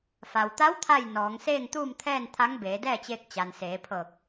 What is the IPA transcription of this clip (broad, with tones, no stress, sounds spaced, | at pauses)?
f a˩ w t̪ a˧˥ w t̪ʰ a˥˨ j n ɔː˩˧ ŋ s eː˥˨ ŋ t̪ uː˥˨ m t̪ʰ ɛː˥˨ n t̪ʰ a˧˥ ŋ b eː˩˧ d ɛː˥˨ t͡ɕ eː˧ k̚ t͡ɕ a˩ n s eː˩˧ pʰ ɤː˧˩ k̚